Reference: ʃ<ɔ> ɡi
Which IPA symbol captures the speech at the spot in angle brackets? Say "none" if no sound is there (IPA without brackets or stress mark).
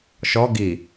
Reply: ɔ